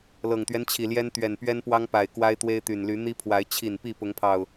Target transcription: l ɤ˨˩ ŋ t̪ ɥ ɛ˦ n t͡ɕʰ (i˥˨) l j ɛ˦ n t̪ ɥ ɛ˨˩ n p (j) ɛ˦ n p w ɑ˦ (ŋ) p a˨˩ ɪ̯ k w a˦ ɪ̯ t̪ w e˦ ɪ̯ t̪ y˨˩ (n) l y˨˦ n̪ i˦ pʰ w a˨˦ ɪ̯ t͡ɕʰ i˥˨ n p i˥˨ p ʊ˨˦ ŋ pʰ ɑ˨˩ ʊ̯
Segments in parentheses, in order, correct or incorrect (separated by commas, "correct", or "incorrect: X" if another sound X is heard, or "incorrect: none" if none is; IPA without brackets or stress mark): incorrect: i˨˩, incorrect: ɥ, correct, correct